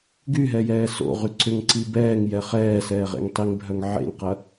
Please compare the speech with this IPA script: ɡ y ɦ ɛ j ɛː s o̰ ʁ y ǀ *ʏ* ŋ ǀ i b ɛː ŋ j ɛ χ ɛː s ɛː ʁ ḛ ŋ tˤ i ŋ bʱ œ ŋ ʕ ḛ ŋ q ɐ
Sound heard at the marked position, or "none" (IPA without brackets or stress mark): ʏ